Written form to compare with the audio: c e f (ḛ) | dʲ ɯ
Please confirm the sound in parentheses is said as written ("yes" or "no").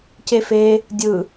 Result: no